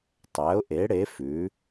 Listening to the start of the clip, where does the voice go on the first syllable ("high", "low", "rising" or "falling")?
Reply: rising